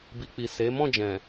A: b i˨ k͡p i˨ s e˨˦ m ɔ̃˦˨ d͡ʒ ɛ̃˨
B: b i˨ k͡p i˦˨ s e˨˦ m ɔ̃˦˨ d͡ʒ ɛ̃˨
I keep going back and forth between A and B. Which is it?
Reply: A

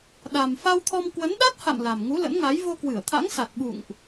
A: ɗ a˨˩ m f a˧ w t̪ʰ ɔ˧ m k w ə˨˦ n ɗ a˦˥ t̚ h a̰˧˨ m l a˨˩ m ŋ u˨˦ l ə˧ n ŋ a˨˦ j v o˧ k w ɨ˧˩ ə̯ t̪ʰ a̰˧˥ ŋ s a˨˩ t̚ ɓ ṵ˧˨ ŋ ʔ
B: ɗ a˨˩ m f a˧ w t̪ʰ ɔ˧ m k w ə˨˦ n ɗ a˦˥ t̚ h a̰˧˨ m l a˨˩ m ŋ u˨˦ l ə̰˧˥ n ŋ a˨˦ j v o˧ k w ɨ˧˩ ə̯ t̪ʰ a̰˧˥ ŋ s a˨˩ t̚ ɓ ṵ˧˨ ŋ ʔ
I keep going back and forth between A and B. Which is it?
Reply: B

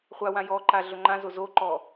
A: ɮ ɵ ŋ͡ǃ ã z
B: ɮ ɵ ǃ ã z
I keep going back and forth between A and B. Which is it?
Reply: A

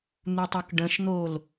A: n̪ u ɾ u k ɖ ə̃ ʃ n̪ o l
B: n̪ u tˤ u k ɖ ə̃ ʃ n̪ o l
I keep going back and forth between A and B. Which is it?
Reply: B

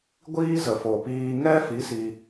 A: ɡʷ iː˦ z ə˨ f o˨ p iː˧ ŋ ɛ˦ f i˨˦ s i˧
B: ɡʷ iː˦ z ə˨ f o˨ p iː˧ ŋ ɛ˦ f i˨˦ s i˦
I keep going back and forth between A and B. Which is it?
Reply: A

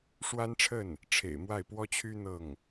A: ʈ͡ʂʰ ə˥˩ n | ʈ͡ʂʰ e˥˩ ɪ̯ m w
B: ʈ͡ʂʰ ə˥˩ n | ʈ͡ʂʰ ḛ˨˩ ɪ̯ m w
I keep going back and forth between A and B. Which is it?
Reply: B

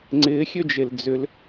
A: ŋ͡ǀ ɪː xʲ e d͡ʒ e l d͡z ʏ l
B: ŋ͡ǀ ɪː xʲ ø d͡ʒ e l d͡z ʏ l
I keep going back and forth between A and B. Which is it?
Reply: B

